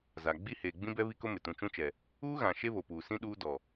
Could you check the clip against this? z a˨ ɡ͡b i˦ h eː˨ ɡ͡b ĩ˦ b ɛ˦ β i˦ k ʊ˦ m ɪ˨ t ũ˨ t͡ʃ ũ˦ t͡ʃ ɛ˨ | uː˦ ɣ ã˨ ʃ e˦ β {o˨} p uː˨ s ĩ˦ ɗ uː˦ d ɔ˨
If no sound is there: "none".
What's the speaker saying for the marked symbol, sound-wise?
o˨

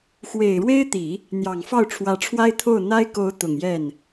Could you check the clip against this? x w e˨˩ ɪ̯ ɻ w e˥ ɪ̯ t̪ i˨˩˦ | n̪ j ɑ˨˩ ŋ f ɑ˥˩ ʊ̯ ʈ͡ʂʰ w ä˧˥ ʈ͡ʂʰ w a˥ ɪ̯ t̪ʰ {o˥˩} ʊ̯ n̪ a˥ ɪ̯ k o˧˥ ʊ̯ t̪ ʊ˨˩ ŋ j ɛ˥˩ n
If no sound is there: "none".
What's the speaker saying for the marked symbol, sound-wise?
o˥˩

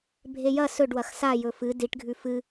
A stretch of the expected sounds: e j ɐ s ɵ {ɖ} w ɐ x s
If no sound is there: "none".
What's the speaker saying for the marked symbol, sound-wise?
ɖ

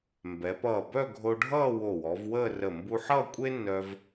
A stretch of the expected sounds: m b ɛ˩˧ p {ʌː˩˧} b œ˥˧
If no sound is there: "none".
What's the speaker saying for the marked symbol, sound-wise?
ʌː˧˩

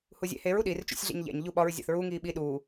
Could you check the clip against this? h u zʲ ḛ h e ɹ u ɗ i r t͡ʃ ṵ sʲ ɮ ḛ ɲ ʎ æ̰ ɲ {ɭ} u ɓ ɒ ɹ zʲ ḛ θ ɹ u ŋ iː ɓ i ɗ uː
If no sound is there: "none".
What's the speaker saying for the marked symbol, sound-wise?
ʎ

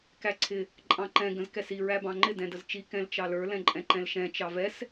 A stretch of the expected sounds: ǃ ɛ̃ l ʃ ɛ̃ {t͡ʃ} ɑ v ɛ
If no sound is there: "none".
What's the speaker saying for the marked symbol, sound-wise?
t͡ʃ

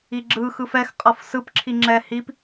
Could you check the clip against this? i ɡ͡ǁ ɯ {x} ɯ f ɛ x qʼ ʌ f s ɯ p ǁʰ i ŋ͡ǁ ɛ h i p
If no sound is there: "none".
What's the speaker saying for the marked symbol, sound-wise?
x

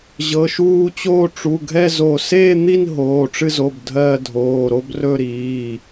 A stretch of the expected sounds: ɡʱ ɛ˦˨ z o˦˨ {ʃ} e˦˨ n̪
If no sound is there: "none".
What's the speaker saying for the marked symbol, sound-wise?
s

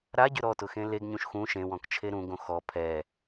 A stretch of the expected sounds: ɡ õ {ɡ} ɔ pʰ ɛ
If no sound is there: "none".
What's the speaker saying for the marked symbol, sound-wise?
x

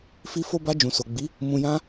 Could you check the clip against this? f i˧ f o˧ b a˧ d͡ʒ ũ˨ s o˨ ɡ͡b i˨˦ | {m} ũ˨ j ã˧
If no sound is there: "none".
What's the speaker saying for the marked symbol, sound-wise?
m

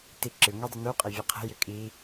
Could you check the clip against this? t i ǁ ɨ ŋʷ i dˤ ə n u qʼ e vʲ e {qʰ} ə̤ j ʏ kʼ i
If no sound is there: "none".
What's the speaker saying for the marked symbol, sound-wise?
qʰ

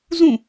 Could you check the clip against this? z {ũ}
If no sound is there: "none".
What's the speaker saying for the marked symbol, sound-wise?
ũ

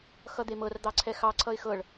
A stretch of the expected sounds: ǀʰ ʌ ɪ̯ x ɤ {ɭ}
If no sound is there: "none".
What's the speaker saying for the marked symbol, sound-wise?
ɭ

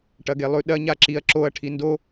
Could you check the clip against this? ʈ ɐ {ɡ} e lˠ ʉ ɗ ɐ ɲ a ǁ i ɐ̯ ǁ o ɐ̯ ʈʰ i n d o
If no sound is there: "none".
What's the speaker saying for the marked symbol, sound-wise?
ɡ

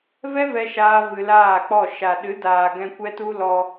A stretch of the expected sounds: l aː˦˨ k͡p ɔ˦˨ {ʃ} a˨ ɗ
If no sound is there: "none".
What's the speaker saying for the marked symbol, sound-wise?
ʃ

